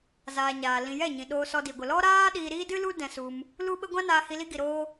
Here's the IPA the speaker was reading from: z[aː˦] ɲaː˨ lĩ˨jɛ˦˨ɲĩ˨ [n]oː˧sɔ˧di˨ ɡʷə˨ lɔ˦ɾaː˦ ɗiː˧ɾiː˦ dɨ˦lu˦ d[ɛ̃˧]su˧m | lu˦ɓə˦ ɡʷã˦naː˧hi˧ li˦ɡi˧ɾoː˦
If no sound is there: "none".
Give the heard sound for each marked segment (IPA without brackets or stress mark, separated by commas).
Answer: aː˨, ɗ, ɛ̃˧